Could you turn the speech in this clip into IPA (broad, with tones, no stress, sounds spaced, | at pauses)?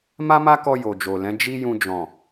m a˦ m a˦ k ɔ˧ j o˨ d͡ʒ o˨ l ɛ̃˨˦ d͡ʒ i˦ j ũ˧ d͡ʒ ɔ̃˨